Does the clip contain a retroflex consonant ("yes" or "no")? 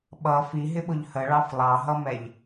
yes